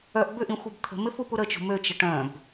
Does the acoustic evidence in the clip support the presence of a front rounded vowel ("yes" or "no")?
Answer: yes